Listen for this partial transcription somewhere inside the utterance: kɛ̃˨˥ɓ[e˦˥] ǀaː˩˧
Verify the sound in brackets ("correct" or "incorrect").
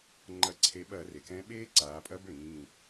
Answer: incorrect